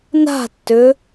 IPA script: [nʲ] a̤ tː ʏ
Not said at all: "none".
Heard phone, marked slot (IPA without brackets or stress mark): n